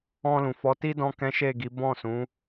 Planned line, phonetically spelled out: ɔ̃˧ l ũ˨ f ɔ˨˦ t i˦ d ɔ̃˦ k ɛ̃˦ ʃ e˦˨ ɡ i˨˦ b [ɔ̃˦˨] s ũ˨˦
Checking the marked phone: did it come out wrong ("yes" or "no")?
no